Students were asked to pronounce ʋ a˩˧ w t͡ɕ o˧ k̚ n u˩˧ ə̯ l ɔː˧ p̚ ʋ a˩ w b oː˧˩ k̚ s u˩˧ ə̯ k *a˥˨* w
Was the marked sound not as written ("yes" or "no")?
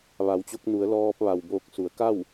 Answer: no